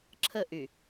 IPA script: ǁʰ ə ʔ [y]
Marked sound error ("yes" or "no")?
no